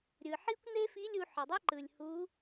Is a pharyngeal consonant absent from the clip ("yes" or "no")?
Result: no